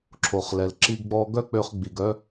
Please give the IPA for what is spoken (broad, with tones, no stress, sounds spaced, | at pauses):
ǁʰ o˩ χ l ɛ˩ l ǁ i˧ ɡ ɡ͡b ɔ˧ ɡ œ˥ k͡p ø˧ χ ɡ͡b i˩ ɡ œ˧